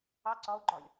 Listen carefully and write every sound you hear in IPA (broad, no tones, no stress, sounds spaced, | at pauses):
ɑ ǀ ɒ o̯ ɡ͡ǃ ɒ lʲ